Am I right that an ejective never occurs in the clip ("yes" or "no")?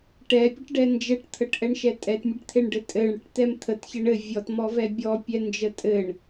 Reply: no